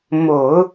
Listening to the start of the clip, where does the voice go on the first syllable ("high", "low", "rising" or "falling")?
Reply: low